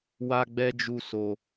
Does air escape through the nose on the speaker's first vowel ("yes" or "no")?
no